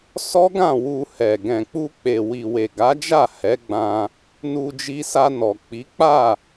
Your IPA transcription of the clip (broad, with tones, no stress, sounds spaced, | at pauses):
s ɔ˦ ɡ ã˦˨ w u˧ h ɛ˨ ɡ ɛ̃˨ k͡p u˧ k͡p e˨ w i˨ w e˨ ɡ a˨˦ d͡ʒ a˦˨ h ɛ˨˦ ɡ͡b ã˧ | n u˧ d͡ʒ i˧ s a˧ n ɔ˨ k͡p i˨˦ k͡p a˦˨